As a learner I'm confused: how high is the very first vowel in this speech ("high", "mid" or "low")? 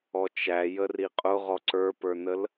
mid